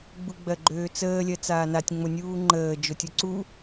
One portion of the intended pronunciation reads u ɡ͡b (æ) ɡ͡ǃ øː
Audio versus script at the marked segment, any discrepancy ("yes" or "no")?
yes